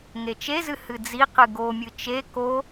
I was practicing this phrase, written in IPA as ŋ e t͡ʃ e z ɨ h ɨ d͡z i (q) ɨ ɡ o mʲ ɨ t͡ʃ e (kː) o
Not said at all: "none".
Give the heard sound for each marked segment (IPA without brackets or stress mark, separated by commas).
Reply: q, k